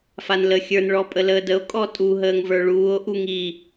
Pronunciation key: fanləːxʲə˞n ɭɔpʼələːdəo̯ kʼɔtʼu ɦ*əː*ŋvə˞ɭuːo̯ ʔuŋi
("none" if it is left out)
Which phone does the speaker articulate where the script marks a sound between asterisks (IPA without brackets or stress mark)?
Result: əː